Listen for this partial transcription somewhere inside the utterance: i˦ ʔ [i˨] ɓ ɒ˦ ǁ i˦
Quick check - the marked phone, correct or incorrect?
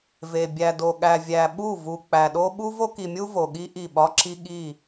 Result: incorrect